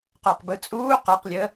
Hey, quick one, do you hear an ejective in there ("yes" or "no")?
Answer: yes